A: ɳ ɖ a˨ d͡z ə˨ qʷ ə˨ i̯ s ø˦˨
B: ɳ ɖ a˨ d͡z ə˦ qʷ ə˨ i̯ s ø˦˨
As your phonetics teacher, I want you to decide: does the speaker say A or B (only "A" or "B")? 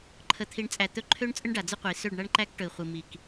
B